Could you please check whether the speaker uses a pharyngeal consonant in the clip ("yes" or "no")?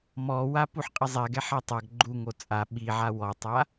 yes